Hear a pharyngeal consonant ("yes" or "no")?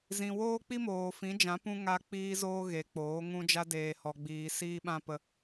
no